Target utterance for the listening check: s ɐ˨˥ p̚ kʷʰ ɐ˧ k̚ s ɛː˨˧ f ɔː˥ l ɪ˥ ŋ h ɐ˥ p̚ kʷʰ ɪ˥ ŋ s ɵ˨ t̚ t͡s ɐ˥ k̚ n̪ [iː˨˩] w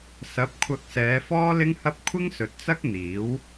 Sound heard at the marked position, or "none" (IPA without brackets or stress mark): iː˨˥